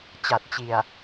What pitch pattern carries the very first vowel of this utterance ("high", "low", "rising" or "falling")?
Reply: low